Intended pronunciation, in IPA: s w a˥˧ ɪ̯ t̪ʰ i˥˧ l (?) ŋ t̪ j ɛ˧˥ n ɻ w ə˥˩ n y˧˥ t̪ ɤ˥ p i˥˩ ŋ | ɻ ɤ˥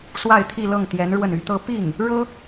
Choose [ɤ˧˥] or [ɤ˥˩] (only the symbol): ɤ˥˩